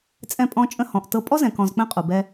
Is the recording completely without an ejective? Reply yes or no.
no